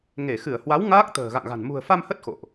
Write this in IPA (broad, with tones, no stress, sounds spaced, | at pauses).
ŋ e˧˩ x ɨ˧˩ ə̯ h w a˨˦ w ŋ aː˦˥ k̚ t̪ ə̤ː˨˩ ɣ a̰˧˨ ŋ ɣ a̤˨˩ n m ṳ˨˩ ə̯ f a˧ m h ə˦˥ t̚ x o̰˧˨ ʔ